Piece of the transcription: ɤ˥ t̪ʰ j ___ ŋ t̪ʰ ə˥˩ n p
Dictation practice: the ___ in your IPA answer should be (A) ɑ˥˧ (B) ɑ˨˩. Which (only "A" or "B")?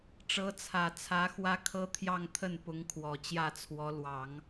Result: A